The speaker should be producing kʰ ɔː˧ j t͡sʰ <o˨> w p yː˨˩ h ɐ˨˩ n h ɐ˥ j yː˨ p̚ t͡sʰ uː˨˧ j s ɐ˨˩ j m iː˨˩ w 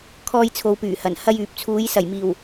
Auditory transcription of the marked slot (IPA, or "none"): o˨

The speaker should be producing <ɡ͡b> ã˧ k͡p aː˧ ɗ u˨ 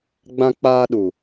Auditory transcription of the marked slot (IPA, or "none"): ɡ͡b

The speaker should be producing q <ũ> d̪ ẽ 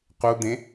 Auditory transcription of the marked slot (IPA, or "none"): u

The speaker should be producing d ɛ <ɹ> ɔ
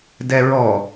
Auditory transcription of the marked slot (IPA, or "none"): ɹ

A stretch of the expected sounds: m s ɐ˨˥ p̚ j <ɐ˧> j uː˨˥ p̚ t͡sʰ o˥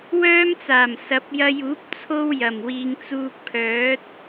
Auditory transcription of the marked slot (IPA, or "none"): ɐ˧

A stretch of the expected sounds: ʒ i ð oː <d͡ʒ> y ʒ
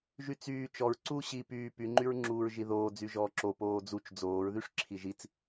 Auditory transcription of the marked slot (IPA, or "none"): d͡z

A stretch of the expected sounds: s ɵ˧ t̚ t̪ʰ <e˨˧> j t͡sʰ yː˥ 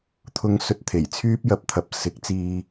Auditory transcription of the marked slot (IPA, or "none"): e˨˩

